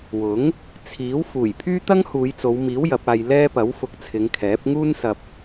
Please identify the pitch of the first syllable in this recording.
rising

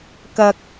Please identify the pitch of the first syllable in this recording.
low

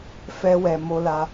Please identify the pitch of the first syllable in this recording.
high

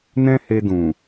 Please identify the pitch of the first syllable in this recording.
high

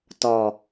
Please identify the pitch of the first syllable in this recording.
low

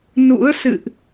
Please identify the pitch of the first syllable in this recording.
rising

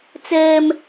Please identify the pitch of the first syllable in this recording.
high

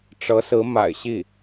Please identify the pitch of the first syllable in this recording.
rising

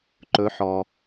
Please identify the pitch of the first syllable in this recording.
rising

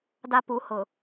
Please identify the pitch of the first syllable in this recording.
high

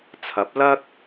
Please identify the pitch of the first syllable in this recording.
rising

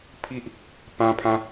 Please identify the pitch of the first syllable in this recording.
high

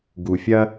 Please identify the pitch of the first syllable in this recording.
low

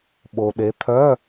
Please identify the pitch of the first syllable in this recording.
low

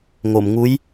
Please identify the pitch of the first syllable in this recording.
low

